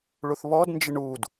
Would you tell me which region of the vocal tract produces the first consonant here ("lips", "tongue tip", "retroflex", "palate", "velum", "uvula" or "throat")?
retroflex